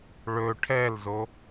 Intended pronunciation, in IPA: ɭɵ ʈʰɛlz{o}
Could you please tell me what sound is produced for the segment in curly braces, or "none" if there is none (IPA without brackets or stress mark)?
o